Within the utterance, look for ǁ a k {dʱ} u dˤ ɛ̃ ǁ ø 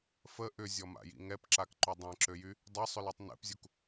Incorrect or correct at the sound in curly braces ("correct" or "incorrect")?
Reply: incorrect